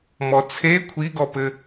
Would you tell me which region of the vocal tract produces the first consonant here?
lips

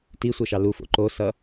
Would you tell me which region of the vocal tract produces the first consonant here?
tongue tip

